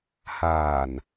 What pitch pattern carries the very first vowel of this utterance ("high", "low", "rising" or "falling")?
low